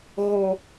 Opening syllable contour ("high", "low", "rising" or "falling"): high